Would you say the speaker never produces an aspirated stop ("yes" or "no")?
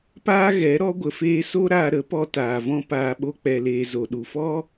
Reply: yes